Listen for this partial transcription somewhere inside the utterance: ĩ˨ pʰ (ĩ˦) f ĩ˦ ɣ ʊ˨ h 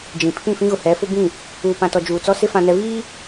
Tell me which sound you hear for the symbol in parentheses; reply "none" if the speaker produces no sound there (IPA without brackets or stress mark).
ĩ˦˨